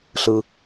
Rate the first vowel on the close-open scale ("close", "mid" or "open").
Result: close